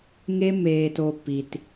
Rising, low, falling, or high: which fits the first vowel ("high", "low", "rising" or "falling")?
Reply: high